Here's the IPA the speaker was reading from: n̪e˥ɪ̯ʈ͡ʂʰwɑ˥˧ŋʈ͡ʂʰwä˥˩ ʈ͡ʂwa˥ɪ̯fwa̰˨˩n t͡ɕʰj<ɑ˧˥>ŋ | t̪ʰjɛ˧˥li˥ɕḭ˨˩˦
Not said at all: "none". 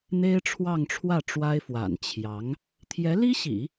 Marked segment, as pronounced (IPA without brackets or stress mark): ɑ˧˥